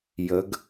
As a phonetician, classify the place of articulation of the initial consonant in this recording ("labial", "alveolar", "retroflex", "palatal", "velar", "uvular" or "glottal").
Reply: palatal